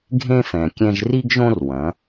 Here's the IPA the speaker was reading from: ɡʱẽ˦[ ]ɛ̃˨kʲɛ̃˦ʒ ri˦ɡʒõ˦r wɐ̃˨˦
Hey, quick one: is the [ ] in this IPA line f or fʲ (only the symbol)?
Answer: f